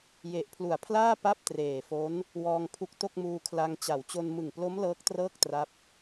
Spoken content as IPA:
j e˨˩ ʔ pʰ l u˨˩ a̯ pʰ l aː˥˩ p a˥˩ p̚ t r eː˨˩ f o˦˥ n | w ɔː˧ ŋ pʰ u˦˥ k̚ t o˥˩ k̚ m uː˧ kʰ l a˧ ŋ t͡ɕ a˩˦ w t͡ɕ o˧ n m ɯ˨˩ ŋ p l o˦˥ m l ɤː˦˥ k̚ t r ɤː˥˩ k̚ t r a˦˥ p̚

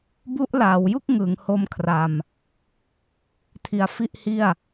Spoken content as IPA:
b u˦˥ ʔ l aː˩˦ w j u˥˩ k̚ ŋ ɯ˩˦ ŋ h o˦˥ m kʰ r a˧ m | tʰ i˧ a̯ f i˥˩ ʔ h i˥˩ a̯

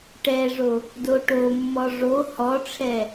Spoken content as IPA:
ʈ ɛ ʐ o | d o ʈ o mː ɔ ʐ o h ɔ ʈ͡ʂʰ ɛ

